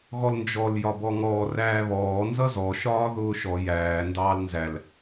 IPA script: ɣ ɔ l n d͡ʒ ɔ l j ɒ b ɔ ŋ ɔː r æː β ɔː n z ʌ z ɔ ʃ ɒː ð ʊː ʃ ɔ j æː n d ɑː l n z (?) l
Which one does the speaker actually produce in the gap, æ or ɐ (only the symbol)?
æ